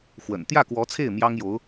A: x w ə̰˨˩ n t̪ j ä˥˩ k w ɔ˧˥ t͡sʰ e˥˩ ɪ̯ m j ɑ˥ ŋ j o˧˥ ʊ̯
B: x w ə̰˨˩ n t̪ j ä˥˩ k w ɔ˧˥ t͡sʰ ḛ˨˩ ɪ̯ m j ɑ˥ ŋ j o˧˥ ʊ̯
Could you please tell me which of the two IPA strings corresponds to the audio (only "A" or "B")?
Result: A